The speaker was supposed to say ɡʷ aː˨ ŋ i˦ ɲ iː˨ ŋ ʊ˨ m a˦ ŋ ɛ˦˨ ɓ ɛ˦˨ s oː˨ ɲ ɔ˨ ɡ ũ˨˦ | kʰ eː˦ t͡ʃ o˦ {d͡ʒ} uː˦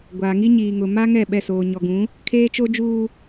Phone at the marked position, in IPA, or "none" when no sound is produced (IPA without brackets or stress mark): d͡ʒ